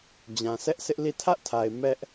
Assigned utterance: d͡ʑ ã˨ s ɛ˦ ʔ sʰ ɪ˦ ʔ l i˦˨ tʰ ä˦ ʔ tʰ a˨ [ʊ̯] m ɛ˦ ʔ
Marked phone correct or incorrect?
incorrect